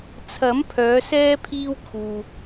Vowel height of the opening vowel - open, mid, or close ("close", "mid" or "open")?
open